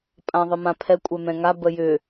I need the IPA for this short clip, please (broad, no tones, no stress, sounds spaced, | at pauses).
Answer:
pʼ ã ðˤ ə m ã pʰ ɛ kʷʼ ɛ m ɛ̃ ŋ a b ə j ʏ